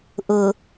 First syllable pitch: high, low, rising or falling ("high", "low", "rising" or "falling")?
low